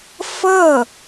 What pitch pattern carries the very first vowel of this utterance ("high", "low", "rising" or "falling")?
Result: falling